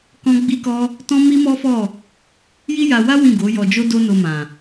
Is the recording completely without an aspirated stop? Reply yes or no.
yes